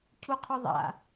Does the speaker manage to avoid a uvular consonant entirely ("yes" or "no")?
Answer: no